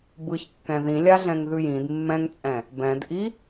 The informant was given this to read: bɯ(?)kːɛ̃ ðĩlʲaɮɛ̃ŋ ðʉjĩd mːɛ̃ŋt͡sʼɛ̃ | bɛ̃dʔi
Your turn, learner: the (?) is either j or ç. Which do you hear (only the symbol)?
ç